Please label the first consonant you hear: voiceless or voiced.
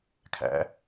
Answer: voiceless